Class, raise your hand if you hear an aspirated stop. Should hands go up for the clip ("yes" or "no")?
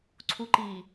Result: yes